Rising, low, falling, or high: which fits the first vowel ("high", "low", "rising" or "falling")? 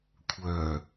low